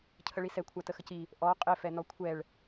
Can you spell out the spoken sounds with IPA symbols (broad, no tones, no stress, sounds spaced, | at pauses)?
cʰ ə ɭ i s ɛ kʷʰ a t ə x ə c i | ʔ ɔ qʼ ɪ f ɛ n ɔ kʷʰ ɛ ɭ